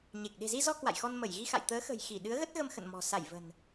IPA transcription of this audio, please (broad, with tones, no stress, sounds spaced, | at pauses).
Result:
ɲ e˨˩ k̚ ɗ e̤˨˩ z i˧ z ɔ˧ k w a̰˧˨ j x ɔ˧ n m ə˧˩ j ɣ i˧ x a̰˧˨ j t̪ əː˨˦ x ə̤˨˩ j x i˧˩ ɗ ɨ˨˦ ə̯ ɣ ə˦˥ t̚ ɣ ə˧ m x ə̰˧˨ n m ɔ̤˨˩ s a˧˩ j v ə̤˨˩ n